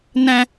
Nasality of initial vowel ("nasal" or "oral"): nasal